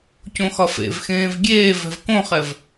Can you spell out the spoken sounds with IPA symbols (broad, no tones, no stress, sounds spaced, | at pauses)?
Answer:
c õ x ɒ f ḛ v x ẽː v ɡʲ eː v ɛ̤ v k õ χ ɛ v